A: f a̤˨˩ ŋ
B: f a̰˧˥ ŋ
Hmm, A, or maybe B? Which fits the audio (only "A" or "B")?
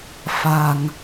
A